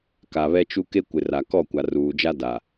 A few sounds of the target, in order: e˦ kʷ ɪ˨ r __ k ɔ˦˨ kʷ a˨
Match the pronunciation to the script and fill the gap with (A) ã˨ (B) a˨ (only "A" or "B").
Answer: B